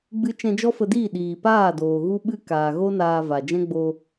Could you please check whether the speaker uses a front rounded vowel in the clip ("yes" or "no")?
no